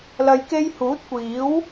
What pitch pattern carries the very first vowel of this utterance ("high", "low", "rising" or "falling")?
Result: low